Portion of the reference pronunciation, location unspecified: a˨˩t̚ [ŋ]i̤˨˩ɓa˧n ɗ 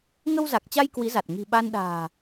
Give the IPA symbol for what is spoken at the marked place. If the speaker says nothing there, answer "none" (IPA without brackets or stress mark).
ŋ